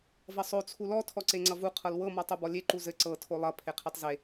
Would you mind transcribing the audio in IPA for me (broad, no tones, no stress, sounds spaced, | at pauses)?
v ʌ sˤ o t͡sʰ u l ɔ tʰ ɔ ǀ e ŋ͡ǀ ʌ v u qʰ ɤ l w ɤ m ɔ tˤ u b ɔ lʲ e ǃ u z ɘ ǀ ɤ tʰ o lˠ ʌ pʰ e qʰ e tˤ z e